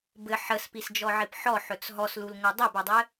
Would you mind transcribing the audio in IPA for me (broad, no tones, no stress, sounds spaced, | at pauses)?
b ɘ ħ ə s p i s d͡ʒ ɔ ʕ i p ħ ɔ ħ ɵ t͡s ɦ ɔ s l u l ŋʷ ɘ dˤ e b ɵ dˤ ɘ